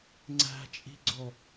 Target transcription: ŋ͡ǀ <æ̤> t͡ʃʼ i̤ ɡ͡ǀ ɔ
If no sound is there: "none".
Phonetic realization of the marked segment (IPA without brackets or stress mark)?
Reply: æ̤